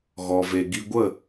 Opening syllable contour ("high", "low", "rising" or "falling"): low